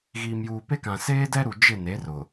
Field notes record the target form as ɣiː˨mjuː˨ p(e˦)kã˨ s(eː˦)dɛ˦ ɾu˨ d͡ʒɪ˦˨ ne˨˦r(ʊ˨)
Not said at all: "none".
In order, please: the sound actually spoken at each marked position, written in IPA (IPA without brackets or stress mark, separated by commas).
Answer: e˦, eː˦, ʊ˨